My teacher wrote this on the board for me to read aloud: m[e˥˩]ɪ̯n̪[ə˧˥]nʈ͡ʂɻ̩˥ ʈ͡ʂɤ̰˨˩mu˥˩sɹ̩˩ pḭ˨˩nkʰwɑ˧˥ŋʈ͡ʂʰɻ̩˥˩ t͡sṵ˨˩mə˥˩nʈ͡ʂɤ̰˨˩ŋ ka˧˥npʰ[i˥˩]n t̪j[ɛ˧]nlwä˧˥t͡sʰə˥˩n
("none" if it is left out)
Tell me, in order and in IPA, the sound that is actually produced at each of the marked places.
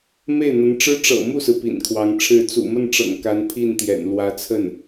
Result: e˥˩, ə˧˥, i˥˩, ɛ̰˨˩

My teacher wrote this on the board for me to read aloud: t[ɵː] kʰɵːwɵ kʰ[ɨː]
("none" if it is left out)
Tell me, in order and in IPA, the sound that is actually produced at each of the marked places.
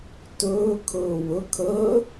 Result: ɵː, əː

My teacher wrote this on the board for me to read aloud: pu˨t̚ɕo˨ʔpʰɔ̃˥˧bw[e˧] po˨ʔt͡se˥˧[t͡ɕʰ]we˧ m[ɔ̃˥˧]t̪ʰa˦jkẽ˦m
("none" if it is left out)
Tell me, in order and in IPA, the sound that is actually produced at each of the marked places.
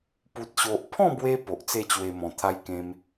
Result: e˧, t͡ɕ, ɔ̃˨˩

